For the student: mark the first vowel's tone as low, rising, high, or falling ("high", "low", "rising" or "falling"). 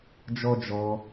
high